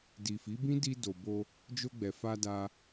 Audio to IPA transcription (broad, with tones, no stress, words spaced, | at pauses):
di˨fi˨˦bĩ˦ di˧do˨bo˧ | d͡ʒo˧ɡ͡bɛ˨fa˧da˧